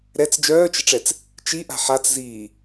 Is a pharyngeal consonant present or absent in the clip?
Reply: present